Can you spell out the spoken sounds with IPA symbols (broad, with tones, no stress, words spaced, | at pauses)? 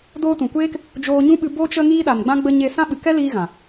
doː˧tũ˨kʷeː˦k | d͡ʒoː˧ɲũ˦ɓɨ˧ bo˧t͡ʃə˧ ŋiː˧ɗa˨nɡ͡bã˧ ɡ͡bə˧ ɲe˧ sã˦ɓɨ˨ kɛ˦liː˧ ɣã˨